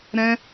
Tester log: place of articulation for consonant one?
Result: alveolar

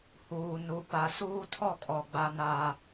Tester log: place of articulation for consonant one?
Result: glottal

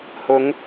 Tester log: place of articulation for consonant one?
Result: glottal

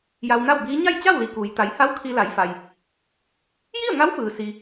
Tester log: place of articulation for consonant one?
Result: palatal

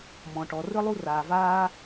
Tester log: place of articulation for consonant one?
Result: labial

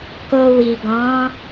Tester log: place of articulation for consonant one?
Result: velar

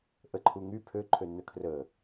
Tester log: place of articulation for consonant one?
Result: glottal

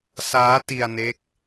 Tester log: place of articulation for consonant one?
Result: alveolar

